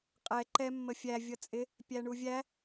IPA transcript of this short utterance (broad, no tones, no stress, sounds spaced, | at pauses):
qʼ ɛ ǃ ɛ mː ə fʲ æ vʲ ʌ t͡sʼ ɪ | pʲ æ ɳ u vʲ æ